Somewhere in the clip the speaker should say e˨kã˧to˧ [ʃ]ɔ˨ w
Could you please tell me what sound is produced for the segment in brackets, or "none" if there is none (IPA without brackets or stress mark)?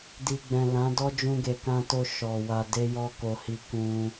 ʃ